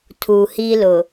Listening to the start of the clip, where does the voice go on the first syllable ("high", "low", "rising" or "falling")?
low